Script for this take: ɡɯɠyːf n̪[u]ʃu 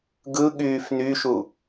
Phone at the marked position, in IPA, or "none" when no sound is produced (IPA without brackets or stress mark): y